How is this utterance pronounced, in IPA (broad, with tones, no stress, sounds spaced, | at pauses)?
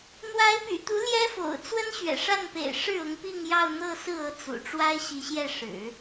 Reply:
n̪ w a˧˥ ɪ̯ p y̰˨˩ t̪ u˧˥ l j ɛ˥ f o̰˨˩ ʊ̯ t͡s w ə˥ n ɕ ɥ ɛ̰˨˩ ʂ a˥˩ n p ḛ˨˩ ɪ̯ ʂ ɻ̩˥˩ ʊ˧˥ ŋ p i˥˧ ŋ j ɑ˥˧ ʊ̯ n̪ ɤ˥˧ s ɹ̩˥˩ ɤ˧˥ t͡s ṵ˨˩ ʈ͡ʂ w a˥ ɪ̯ ɕ i˧˥ ɕ j ɛ˥˩ ʂ ɻ̩˨˩˦